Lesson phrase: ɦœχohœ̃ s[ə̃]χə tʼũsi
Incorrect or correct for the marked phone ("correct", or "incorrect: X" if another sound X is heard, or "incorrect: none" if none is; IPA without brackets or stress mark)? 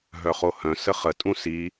incorrect: ə